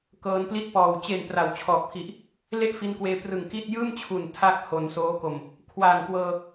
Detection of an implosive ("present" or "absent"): absent